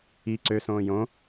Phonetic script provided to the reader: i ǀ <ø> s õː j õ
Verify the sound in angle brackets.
correct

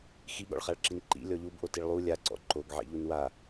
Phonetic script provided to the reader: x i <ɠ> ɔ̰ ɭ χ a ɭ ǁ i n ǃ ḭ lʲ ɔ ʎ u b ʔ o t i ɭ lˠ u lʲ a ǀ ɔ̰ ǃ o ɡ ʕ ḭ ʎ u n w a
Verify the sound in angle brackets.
correct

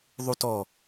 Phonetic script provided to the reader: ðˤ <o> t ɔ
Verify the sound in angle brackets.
incorrect: u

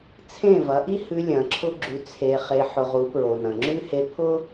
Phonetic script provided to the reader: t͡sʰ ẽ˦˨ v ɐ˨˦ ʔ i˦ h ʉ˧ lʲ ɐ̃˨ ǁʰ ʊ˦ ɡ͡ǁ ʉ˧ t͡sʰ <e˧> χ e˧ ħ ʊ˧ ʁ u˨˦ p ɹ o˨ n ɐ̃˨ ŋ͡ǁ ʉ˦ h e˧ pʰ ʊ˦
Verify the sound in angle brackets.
correct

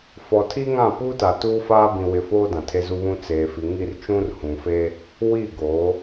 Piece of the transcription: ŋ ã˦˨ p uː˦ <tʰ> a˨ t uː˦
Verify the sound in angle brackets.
incorrect: t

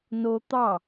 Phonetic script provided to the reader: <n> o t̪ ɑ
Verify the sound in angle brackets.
correct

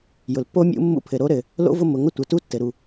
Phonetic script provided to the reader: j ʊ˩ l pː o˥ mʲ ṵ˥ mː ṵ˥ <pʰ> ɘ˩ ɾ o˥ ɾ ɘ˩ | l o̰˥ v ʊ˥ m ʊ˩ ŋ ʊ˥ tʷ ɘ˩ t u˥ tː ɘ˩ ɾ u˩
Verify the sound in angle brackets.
correct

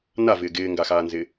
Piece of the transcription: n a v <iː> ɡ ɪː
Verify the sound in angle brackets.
incorrect: ɪː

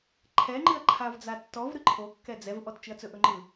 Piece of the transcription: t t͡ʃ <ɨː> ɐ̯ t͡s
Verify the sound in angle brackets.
incorrect: ɨ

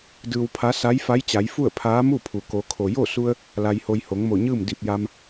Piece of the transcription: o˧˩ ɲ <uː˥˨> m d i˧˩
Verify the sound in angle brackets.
incorrect: ɯː˥˨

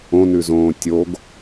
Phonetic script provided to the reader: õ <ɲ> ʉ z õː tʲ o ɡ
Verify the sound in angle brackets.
incorrect: n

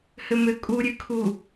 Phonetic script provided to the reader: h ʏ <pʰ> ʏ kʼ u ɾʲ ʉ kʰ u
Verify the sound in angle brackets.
incorrect: m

